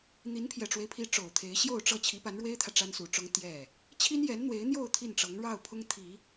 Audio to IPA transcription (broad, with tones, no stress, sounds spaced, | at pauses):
n̪ i˧˥ n pʰ j ɛ˨˩ ʈ͡ʂ w e˦ ɪ̯ pʰ i˧˥ ʈ͡ʂ o˨˩ ʊ̯ t̪ʰ e˧˥ ɪ̯ ɕ j o˥˧ ʊ̯ ʈ͡ʂ ɤ˥˩ t͡ɕʰ i˧˥ p a˧˥ n ɻ w e˥ ɪ̯ t̪ʰ ä˨ ʈ͡ʂ a˥ n s u˨˩ ʈ͡ʂ ʊ˥ ŋ t̪ j ɛ˥˩ | t͡ɕʰ i˥ n j ɛ˧˥ n n̪ w e˧˥ ɪ̯ n̪ j o˥˧ ʊ̯ t̪ʰ i˥˩ n ʈ͡ʂ ɤ˧˥ ŋ ɻ ɑ˥˩ ʊ̯ pʰ ʊ˥ ŋ t̪ʰ i˨˩˦